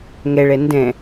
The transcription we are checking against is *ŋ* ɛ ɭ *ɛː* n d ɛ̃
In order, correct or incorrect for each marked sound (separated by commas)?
correct, incorrect